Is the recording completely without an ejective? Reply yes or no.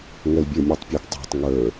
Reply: yes